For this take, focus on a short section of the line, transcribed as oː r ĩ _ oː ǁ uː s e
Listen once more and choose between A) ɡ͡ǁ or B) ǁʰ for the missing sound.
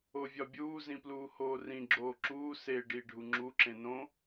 A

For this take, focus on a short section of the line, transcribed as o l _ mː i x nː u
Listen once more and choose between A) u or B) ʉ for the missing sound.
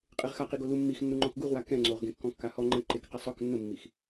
A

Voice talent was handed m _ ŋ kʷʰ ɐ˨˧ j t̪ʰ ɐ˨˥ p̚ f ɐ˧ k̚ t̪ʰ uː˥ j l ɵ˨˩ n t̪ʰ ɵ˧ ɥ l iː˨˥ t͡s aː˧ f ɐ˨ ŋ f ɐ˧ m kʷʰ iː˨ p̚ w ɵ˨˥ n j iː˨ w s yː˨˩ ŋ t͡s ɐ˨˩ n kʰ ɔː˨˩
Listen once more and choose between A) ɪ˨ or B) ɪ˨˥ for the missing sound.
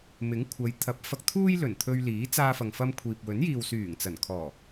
B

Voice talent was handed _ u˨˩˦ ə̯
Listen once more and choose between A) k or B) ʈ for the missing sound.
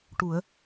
B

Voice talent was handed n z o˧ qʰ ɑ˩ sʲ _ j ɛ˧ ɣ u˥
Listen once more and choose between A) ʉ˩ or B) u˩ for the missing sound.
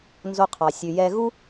A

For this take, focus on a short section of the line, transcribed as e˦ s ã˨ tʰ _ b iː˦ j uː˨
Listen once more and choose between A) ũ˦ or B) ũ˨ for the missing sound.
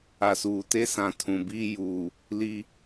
B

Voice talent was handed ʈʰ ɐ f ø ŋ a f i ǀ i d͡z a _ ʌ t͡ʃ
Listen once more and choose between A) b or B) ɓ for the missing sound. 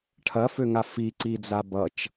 A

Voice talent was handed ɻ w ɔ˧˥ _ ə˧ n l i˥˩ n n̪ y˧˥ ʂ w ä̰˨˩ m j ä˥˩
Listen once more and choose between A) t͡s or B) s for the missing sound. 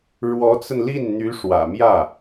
A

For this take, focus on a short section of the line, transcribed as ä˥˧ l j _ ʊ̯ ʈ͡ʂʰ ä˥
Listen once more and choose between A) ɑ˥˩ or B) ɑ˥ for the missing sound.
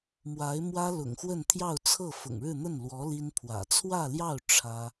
A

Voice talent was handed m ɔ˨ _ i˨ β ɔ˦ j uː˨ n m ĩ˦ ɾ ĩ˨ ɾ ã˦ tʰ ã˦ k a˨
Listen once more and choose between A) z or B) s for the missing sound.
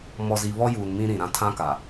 A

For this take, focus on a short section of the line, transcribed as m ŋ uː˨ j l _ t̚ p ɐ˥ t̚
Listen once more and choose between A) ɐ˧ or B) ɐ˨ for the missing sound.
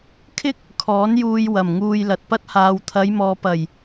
B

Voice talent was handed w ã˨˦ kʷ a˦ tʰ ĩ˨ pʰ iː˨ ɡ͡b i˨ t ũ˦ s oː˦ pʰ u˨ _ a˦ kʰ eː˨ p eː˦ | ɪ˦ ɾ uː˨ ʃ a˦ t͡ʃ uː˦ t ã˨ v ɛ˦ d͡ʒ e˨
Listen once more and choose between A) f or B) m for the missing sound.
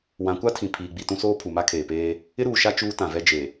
B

